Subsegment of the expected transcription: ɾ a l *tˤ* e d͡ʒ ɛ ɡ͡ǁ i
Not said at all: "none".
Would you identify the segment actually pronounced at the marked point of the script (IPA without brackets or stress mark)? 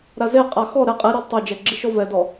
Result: tˤ